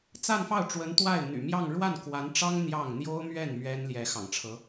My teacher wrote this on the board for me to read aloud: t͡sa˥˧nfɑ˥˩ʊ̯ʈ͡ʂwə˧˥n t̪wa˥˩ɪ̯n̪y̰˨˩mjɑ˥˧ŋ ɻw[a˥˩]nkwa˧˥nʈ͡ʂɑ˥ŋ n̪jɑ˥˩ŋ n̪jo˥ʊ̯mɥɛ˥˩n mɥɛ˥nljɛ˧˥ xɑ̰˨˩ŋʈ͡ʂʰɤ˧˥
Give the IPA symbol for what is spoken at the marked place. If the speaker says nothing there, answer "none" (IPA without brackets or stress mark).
a˥˩